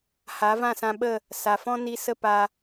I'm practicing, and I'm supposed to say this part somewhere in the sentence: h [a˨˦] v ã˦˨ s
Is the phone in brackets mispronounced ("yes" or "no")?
no